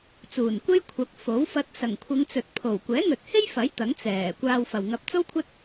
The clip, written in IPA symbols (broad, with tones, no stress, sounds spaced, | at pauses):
t͡s uː˨˩ n kʷ e˥ j kʷʰ ɐ˨˥ k̚ f o˨˥ w f ɐ˧ t̚ s ɐ˨˩ ŋ kʷʰ ɪ˨˧ ŋ t͡s ɵ˨ t̚ pʰ o˨˩ w kʷ ɛː˨˥ ŋ ɵ˨ t̚ h e˥ j f ɐ˨˥ j t̪ ɐ˨˥ ŋ t͡s ɛː˨˩ kʷ aː˧ w f ɐ˨ w ŋ ɐ˧ p̚ t͡s o˥ w kʷʰ ɐ˥ t̚